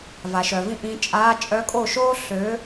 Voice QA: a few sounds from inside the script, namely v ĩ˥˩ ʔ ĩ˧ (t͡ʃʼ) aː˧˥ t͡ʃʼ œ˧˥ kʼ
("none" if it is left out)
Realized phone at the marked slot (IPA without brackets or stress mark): t͡ʃʼ